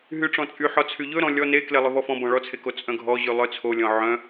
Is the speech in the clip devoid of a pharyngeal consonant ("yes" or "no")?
no